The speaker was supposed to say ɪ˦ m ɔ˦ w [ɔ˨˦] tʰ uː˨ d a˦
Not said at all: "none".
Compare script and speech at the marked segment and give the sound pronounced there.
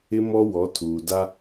ɔ˨˦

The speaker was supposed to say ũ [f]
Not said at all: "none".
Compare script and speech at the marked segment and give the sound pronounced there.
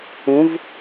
v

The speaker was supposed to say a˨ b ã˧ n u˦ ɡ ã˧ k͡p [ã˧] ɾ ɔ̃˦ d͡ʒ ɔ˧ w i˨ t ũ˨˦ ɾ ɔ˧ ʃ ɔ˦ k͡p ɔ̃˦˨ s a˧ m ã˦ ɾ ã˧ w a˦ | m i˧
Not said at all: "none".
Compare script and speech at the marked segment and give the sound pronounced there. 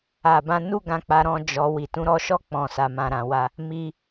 a˧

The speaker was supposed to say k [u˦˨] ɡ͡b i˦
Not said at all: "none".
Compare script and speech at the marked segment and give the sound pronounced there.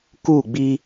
u˦˨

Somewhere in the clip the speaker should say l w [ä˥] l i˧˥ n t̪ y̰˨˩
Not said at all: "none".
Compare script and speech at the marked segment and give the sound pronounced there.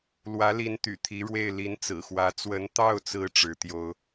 ä˧˥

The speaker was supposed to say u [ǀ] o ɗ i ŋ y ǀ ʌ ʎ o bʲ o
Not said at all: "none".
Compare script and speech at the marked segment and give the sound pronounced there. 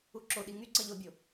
ǁ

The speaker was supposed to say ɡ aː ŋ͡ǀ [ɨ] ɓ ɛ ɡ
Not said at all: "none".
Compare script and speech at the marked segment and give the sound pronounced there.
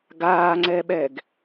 ɛ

